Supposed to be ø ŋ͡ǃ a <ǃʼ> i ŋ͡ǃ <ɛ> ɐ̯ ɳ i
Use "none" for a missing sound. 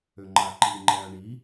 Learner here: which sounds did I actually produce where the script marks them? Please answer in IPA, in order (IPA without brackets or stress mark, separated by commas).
ǃ, ɛ